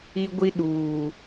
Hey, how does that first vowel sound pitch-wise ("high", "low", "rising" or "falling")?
high